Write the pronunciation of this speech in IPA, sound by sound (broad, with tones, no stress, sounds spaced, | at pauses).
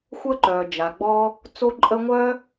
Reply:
xʷ əː˥ ǃ œː˩ d͡ʒ a˩ ɡ͡b ɔ˥ | t͡s o˥ ǃʼ ə˥ ŋʷ œ˥